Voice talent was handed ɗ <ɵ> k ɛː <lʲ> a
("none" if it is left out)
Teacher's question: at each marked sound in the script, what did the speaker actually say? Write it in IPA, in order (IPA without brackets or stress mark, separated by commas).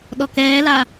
ɔ, l